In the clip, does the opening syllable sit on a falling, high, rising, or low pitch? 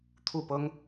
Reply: falling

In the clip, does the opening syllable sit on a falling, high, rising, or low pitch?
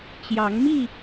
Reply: rising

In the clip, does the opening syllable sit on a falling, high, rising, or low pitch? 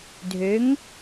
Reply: rising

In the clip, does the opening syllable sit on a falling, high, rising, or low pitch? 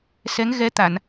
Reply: rising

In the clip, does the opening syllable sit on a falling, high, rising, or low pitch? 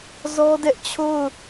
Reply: high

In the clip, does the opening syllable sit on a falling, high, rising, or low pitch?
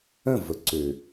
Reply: falling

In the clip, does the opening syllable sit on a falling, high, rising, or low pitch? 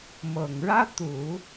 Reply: low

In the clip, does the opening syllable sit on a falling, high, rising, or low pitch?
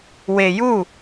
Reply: low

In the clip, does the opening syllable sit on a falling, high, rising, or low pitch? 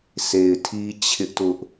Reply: low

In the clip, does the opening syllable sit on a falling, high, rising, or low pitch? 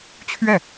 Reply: falling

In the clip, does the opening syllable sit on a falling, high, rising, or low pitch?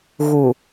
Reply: low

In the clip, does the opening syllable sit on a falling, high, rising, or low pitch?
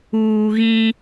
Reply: low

